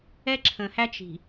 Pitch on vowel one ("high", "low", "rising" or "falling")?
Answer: high